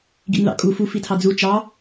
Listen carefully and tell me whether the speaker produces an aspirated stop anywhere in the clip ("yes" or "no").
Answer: yes